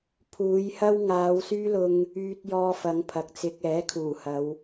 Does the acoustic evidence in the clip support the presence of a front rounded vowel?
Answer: yes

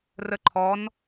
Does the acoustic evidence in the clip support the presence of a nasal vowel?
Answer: no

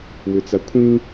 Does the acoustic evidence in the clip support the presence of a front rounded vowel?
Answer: yes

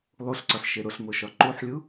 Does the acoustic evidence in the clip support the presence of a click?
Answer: yes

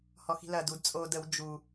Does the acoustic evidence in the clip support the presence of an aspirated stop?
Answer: no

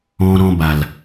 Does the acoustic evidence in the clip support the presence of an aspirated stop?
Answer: no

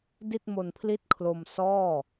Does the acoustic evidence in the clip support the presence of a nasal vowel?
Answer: no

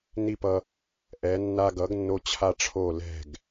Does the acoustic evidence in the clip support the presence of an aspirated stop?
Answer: yes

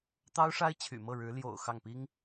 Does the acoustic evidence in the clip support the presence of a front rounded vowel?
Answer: yes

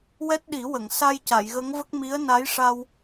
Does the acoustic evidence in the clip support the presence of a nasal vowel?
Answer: no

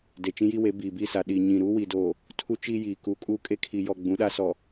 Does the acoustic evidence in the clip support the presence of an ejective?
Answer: yes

